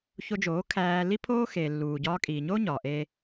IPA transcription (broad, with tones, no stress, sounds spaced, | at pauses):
ç o˧ d͡ʒ oː˨˦ kʰ æː˧ l i˦ pʰ oː˦ x eː˨ lː uː˨ ɟ ɒː˧ kʼ iː˨ ɲ oː˦ ɲ ɒː˨ ʔ eː˦